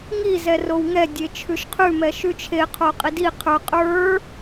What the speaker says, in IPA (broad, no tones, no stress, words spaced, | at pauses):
ŋi zɛrowŋɛ dʲet͡ʃʰʉʃqʰʉ mɛʃʉt͡ʃʰe qʰoqʼidi qʰə˞ qʼə˞